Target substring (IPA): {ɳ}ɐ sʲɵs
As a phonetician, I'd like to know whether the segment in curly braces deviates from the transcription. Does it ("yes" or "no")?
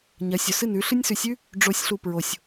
yes